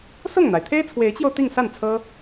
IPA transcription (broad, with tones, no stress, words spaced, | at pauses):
sʊ˥˩ŋn̪a˩ɪ̯ t̪ʰe˥ɪ̯t͡sʰwe˧˥ɪ̯t͡ɕjo˧ʊ̯ t̪i˥˧ŋsa˥˩nt͡sʰɤ˥